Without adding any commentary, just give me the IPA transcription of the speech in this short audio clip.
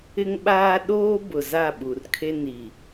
ɪ˦ ŋ ɓ aː˦ ɗ oː˦ b ʊ˨ z a˦˨ ɓ u˨ r kʰ e˦ n i˨

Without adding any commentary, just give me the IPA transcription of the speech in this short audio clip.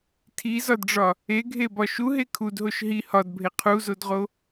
tʰ i z ɒ d ɖ͡ʐ ɒ | e ɡʱ e b ɒ ʃ u ɦ e kʰ u d ɦ o ʃ ɦ i h ɒ d bʱ e qʰ u z o d ʁ o

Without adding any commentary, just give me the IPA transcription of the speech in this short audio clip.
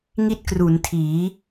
ŋ i˥˩ t̚ k r u˩˦ n tʰ iː˩˦

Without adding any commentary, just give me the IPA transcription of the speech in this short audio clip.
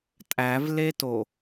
tʼ æ v l e t o

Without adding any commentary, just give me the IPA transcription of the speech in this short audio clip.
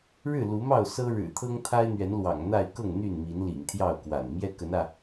ɻ ɻ̩˥˨ l u˨˦ m ɑ˥˨ ʊ̯ s ɤ˦ ɻ ɻ̩˨˩ t̪ʰ ɤ˦ ŋ t̪ʰ a˦ ɪ̯ n̪ ɥ ɛ˨˦ n l w ɑ̰˨˩ ŋ n̪ a˥˨ ɪ̯ k ɤ˥˨ ŋ n̪ y˥˨ n m i˨˦ n l ḭ˨˩ ŋ t̪ʰ j ɑ˥˨ ʊ̯ k w a̰˨˩ n m j ɛ˦ k ə˨˦ n ä˧

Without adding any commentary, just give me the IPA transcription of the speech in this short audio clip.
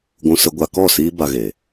ɡʷ ũ˧ s ə˧ ɡʷ a˧ k ɔ˦˨ s iː˦ b a˧ ɣ e˨

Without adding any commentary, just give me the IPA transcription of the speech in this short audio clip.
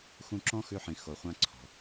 x ũ˧ ǁ ɔ̃˥ x ʉ˧ ħ ĩ˩ x o˩ χʷ ã˧ ǀʰ ɔ̤˩

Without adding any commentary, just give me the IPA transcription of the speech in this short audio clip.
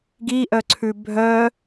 ɡ i ʔ œ ǀʰ ʉ bʱ œ

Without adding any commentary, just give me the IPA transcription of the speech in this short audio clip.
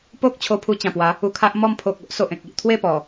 p o˦ k̚ t͡ɕʰ o˧ pʰ u˧ t͡ɕ ã˨˩ p w a˨˦ | u˧ kʰ a˦ ʔ m ɔ˥˧ m pʰ o˨ k̚ o˦ ʔ s o˨ ʔ ẽ˨ k̚ i˨ ʔ t̪ʰ w e˥˧ p ɔ˨˩

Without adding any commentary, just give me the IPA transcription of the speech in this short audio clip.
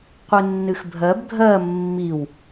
qʷ ɨ nː ɨ x bʱ ɜ b ɡʱ ɜ mː i w

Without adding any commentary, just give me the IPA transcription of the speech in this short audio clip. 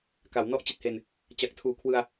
k a˩˦ w n ɔ˦˥ ʔ t͡ɕ i˨˩ t̚ h e˧ n | t͡ɕ a˨˩ k̚ tʰ uː˨˩ kʰ w ɯ˧ a̯

